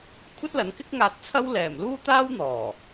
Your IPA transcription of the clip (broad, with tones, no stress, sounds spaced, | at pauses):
kʷʰ ɐ˥ t̚ l ɐ˨˥ n k ɪ˥ k̚ ŋ aː˧ t̚ t͡sʰ ɐ˥ w l ɛː˨˩ m l uː˥ t̪ aː˥ w n̪ ɔː˨˩